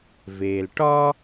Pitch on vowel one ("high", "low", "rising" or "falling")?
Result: low